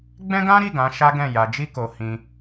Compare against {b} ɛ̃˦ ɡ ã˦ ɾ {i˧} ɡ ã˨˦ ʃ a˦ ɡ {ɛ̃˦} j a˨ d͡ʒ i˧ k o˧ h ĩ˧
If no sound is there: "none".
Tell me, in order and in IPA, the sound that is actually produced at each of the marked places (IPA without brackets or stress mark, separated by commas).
ɡ͡b, i˦˨, ɛ̃˦˨